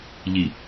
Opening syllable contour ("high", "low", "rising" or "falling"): low